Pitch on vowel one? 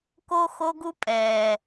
high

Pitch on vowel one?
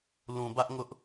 low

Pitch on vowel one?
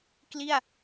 falling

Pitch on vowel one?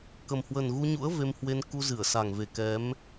low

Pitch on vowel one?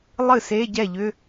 falling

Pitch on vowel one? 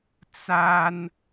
high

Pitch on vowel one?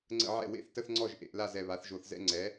falling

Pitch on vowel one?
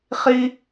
high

